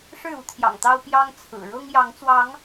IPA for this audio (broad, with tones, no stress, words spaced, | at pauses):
ʂɻ̩˥˨u˨˦ t̪ʰjɑ̰˨˩ŋt̪ɑ˦ʊ̯ pjɑ˦ŋ t͡sʰɹ̩˨˩ ɻɤ˦ŋjɑ˨˦ŋt͡swɑ˨˦ŋ